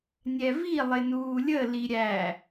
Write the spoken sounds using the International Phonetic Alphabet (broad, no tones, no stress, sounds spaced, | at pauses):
nʲ ɛ v i lˠ ɪ n uː lʲ ə l i ɾʲ æ